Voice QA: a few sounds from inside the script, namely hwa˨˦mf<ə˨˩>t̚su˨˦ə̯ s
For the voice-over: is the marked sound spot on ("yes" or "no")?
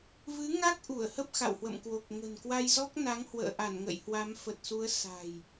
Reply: yes